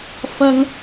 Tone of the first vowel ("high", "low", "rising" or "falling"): high